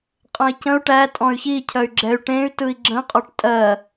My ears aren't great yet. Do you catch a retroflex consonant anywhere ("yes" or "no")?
yes